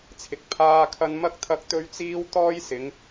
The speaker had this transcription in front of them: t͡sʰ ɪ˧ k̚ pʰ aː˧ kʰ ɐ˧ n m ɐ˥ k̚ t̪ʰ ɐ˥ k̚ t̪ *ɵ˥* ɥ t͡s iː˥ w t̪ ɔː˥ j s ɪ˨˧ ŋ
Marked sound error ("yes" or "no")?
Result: no